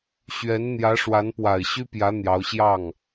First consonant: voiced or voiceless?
voiceless